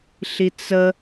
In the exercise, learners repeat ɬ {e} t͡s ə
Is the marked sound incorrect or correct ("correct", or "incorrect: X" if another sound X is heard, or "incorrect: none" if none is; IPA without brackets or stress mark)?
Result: incorrect: i